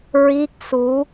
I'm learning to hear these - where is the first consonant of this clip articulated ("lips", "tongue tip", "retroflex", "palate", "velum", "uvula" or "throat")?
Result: tongue tip